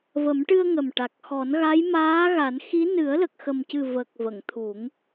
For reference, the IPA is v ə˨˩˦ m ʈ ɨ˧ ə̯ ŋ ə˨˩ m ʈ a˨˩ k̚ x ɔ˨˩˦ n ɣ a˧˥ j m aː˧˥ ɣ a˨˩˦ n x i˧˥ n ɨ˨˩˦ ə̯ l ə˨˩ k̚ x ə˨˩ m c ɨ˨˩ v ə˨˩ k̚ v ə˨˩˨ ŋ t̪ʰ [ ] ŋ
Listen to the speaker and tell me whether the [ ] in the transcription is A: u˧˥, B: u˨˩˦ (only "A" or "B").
B